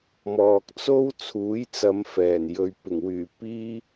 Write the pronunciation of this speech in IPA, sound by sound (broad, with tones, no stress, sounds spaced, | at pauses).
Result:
m ɔː˨ k̚ t͡s o˥ w t͡sʰ uː˨˥ j t͡s ɐ˨˧ m f ɛː˨˩ n j ɵ˨˧ ɥ p ɪ˨˩ ŋ w yː˨˩ p iː˥